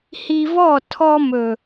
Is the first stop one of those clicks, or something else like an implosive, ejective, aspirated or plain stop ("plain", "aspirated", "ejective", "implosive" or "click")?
aspirated